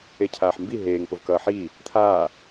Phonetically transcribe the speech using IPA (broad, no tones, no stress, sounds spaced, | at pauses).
e cʰ aː ħ m b i ɦ eː ŋ p o v k ʌː ħ iː | t̪ʰ aː